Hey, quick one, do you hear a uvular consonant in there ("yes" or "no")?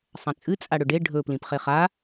yes